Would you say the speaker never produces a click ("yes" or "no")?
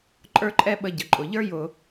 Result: no